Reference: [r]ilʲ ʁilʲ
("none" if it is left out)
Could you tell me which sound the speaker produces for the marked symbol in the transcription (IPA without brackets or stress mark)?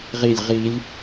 ʁ